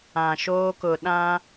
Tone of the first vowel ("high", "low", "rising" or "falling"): low